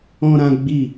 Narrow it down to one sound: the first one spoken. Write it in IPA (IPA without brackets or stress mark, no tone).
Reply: ɔ̃